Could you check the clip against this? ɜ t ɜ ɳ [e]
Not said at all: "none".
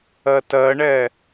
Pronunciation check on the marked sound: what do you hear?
ɛ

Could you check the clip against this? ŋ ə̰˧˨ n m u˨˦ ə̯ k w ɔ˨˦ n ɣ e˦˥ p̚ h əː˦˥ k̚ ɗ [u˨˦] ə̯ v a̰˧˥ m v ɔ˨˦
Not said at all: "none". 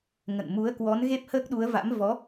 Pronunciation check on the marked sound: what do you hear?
u˨˦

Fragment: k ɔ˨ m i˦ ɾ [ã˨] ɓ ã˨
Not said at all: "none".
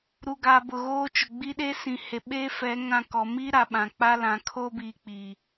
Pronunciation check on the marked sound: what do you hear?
a˨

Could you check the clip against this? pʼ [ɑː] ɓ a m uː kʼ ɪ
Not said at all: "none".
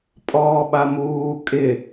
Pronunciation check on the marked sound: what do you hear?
ɔː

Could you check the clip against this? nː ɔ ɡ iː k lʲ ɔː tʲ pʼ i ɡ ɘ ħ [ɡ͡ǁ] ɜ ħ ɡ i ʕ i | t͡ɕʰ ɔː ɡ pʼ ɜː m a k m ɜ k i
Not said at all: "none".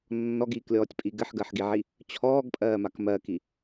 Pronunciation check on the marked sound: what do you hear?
ɡ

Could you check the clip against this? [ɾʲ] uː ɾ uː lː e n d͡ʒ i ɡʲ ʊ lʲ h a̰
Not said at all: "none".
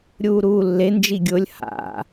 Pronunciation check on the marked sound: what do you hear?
ɾʲ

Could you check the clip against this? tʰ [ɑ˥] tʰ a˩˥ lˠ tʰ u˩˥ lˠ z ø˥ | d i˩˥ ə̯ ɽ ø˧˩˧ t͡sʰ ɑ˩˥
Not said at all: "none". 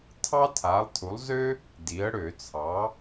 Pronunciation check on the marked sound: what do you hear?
ɑ˥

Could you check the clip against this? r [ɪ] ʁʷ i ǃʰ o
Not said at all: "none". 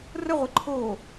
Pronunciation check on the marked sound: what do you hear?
ə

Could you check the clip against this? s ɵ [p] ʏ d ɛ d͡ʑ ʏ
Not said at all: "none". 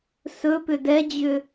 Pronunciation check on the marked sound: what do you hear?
p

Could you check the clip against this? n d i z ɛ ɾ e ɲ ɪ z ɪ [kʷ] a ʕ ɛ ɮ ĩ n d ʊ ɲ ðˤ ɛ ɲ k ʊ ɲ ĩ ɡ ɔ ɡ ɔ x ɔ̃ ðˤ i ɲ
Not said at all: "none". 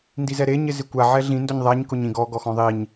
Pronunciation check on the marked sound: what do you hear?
kʷ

